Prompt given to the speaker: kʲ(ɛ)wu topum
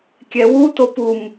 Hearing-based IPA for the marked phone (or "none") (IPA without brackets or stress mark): ɛ